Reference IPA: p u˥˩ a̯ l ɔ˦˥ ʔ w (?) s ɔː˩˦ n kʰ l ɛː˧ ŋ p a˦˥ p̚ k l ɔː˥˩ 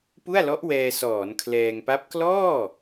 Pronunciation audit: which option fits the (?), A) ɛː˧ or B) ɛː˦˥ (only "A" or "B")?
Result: A